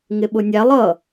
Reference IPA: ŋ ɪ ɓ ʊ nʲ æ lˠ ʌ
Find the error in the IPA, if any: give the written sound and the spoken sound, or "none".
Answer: none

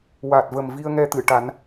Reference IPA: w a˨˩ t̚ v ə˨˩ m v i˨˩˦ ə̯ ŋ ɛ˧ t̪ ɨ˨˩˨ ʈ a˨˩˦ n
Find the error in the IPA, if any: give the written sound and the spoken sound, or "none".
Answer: i˨˩˦ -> i˧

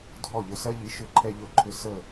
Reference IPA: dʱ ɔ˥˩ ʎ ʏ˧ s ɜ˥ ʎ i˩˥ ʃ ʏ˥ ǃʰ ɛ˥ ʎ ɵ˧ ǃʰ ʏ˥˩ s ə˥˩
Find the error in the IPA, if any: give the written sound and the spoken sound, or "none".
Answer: none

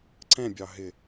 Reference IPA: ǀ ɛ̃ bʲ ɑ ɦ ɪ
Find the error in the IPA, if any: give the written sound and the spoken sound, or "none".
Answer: none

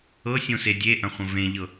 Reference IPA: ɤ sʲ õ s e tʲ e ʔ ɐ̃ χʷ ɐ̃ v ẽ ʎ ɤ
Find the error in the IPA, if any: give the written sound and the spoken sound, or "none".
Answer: tʲ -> dʲ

